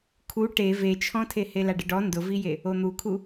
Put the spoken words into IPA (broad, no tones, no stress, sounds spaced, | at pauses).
kʰ u ʈ e v e t͡ʃʰ ɔ̃ tʰ e h e l a ɖ ɪ ɖ ɔ n d ʊ v i j e | o n̪ u kʰ u